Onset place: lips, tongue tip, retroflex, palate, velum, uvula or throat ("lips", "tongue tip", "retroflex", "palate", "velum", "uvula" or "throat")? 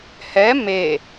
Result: throat